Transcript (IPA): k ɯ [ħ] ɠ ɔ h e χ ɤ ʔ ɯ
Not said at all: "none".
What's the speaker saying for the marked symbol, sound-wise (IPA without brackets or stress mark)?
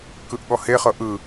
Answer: ʔ